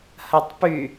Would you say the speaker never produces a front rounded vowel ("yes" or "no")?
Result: no